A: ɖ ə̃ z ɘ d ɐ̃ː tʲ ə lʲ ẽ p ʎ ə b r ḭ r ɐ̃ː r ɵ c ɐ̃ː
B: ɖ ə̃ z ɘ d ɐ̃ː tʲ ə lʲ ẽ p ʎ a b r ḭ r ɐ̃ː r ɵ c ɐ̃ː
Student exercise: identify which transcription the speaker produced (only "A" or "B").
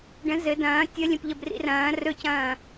A